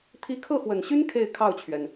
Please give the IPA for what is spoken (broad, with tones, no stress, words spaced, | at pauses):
t̪ʰi˧˥kʰɤ˥˩xwə˨˩nɕy˥n kʰe˥˧ɪ̯kʰɑ˥˩ʊ̯t͡ɕʰɥɛ˩n